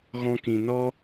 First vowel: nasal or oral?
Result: nasal